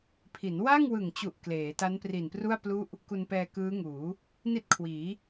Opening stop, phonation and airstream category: aspirated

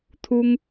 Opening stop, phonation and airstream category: aspirated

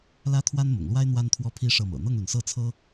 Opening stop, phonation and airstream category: aspirated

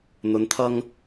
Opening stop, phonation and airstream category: aspirated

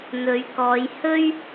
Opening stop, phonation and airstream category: plain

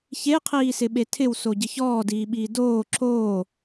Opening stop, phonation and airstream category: aspirated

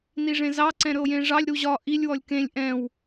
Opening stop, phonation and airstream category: click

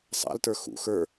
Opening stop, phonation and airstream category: plain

